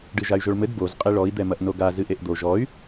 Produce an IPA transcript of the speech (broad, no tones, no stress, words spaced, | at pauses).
ɖɨʒay̯ʒoɭmɘd boz qʼiɭɔi̯ d̪ɛmɐʔnoɡa zɨʔeʔd̪o ʒɔy̯